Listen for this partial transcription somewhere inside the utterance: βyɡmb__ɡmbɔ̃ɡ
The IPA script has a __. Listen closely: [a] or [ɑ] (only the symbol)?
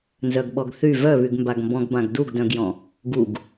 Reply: a